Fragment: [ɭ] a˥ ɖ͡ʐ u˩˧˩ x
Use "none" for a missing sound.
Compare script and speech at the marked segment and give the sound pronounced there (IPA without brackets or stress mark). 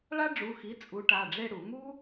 ɭ